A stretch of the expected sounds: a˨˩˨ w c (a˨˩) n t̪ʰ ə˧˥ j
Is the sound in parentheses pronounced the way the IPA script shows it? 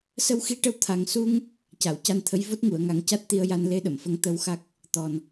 no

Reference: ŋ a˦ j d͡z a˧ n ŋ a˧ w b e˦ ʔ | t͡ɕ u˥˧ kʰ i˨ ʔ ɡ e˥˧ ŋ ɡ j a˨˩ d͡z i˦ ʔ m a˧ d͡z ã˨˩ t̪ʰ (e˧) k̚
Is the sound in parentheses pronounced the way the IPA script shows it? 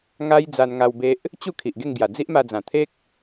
no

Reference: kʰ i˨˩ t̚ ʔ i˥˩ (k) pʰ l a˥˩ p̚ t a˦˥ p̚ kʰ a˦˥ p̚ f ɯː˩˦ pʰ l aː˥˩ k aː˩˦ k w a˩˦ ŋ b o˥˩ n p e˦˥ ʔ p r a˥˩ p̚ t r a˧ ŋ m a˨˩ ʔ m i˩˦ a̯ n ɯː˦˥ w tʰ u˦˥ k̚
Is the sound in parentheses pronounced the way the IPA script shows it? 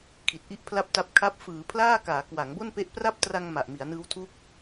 no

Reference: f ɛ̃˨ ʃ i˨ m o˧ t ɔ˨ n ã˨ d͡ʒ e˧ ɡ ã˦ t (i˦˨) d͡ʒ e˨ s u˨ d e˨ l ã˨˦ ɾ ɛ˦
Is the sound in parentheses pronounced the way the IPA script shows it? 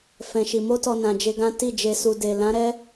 yes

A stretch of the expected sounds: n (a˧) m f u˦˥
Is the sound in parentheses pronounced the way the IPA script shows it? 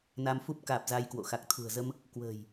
yes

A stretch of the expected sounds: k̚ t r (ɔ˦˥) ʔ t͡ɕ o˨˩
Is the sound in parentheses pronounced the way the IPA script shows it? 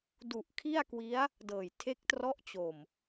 yes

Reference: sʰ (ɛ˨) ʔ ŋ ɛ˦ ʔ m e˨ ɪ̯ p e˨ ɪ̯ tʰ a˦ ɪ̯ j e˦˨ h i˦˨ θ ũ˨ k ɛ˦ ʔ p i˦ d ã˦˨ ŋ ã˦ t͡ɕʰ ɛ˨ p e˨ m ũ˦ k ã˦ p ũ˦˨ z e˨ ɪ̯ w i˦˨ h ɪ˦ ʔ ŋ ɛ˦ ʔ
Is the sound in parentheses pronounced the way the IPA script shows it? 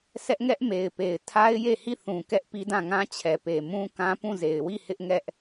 no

